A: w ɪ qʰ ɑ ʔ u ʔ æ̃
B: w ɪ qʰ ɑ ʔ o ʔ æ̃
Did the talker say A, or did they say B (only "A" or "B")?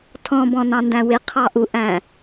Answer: A